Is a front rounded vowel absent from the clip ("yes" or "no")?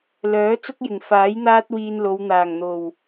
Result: no